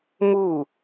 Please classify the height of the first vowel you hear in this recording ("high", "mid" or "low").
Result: high